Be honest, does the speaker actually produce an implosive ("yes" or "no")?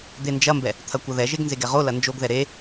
no